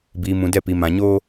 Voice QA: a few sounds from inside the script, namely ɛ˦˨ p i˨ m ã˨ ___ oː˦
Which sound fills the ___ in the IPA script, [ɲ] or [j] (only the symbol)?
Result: ɲ